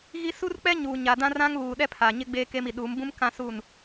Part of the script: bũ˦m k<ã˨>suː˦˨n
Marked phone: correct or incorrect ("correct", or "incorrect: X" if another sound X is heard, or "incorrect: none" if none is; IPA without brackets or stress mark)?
incorrect: ã˦